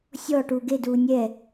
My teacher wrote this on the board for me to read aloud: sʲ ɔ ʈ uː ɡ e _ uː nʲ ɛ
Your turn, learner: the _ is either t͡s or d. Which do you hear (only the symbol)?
d